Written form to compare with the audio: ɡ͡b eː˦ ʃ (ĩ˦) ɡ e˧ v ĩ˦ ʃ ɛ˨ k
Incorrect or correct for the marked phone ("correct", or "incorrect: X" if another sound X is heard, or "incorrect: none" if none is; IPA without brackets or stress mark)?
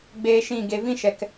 incorrect: ĩ˦˨